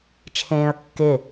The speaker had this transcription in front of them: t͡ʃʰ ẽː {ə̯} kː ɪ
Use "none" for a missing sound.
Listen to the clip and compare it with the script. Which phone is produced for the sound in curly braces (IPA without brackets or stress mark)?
ə̯